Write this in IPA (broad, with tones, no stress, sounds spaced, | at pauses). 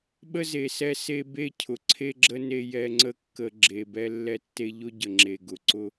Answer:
ɓ ə˦ z e˨ s ɛ˦ s e˦ b e˦ cʰ ʊ˨ ǀʰ e˦ ɡ͡ǁ ə˦ n e˦ j ɛ˦ ŋ͡ǀ ə˦ kː ə˨ ɡ͡ǁ e˨ b ɛ˦ lː ɛ˦ tː e˦ ʎ ʊ˦ ɟ ə˨ ŋ͡ǁ e˨ ɡ ʊ˨ ǀ ʊ˦